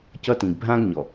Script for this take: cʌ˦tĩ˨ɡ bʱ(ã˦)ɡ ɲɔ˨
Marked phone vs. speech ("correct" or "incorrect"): correct